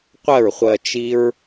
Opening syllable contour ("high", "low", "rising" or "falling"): falling